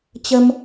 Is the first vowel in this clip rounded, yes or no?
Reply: no